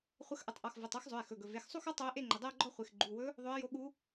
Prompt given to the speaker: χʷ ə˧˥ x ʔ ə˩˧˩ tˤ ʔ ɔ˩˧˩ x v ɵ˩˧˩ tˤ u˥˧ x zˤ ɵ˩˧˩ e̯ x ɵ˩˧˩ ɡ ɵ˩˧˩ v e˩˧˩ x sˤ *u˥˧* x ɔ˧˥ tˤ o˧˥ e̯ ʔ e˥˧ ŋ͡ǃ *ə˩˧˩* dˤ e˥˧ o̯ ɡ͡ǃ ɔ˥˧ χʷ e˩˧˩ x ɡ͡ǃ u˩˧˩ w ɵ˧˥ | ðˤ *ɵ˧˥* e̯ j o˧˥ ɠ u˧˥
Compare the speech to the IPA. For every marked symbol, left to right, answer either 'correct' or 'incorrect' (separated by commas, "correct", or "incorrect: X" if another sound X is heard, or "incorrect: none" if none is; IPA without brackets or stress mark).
correct, correct, correct